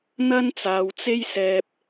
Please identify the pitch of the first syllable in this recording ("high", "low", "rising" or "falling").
high